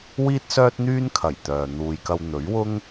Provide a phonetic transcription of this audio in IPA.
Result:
w iː˥ t̚ s œː˥ t̚ n̪ yː˥ n kʰ ɐ˨˩ j t̪ œː˨ n̪ uː˨ j k ɐ˧ w n̪ ɵ˨˥ ɥ w ʊ˥ ŋ

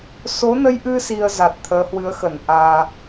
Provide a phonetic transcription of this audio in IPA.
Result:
s o˨˦ n ə˧ j ʔ ɨ˧ s i˧ ə̯ z a˨˩ t̚ t̪ʰ əː˨˦ h w ɨ˨˦ ə̯ x ə˧˩ n ʔ aː˨˩

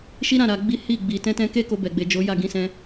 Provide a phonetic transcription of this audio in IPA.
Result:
ʃ i˦ ɾ ã˦˨ ɾ a˧ ɡ͡b i˦ h i˦˨ ɡ͡b i˨ t ɛ̃˧ t ɛ̃˧ k e˦ k o˧ b ɛ˨ ɡ͡b e˨ d͡ʒ o˨˦ j a˦˨ ɡ ĩ˨˦ s ɛ̃˧

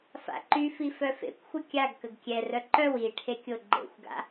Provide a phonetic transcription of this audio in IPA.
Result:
f a̰ ǃ y f i f œ f ḛ kʷ xʷ ə kʲ a ɡ k ə ɡ kʲ ɛ r œ ǃ œ w i ʈʰ e kʲ o ɡ͡ǃ ḛ xʷ ɡ a̰

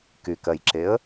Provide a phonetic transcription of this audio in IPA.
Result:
k y k ɜ j ǁ e ə̯

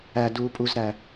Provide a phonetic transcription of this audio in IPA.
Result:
æ d uː pʼ u z ɾ æ

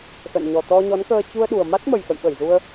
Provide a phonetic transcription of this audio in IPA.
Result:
x ə̰˧˨ n ɲ ɔ˨˩ t̪ ɔ˧ ɲ ɔ˨˦ n k əː˧ t͡ɕ u˧ ə̯ ɗ u˨˩ ə̯ m a˦˥ t̚ m ə˨˩ j x ə̰˧˨ j ɓ ə˧˩ j z u˧ ə̯

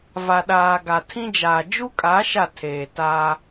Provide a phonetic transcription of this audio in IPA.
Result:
v a˨ ɗ aː˨ ɡ a˨ tʰ ĩ˦ d͡ʒ aː˨ d͡ʒ u˦ kʼ a˨˦ ʃ a˦˨ tʰ eː˨ t a˦

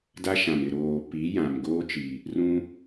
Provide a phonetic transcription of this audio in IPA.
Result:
d a˦ ʃ ã˨ m ɪ˨ ɾ oː˨ p i˨˦ j ã˨ m ɡ oː˦ t͡ʃ i˨ | r ũ˦

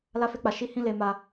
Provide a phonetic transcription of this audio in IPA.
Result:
l a˦ f e˦ k͡p a˧ ʃ i˦ h ĩ˦ l e˧ m a˧

